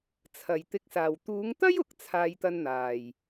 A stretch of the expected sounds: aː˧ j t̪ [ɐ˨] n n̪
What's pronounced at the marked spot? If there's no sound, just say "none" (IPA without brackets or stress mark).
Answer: ɐ˧